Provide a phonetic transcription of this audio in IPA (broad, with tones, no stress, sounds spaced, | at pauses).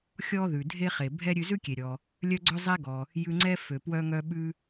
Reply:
xʲ ɔ˥ ð ʉ˩ dʱ e˥ χ e˩ bʱ ɛ˥ ɾʲ ʉ˧ z ʉ˥ kʲ e˩ ɾʲ ɔ˩ | lʲ œ˥ ɡ͡ǀ œ˥ zˤ ɛ˥ ɡ ɔ˩ | j ʉ˧ ŋ͡ǀ ɛ˥ f ø˩ p w œ˧ ŋ œ˧ ɓ ʉ˧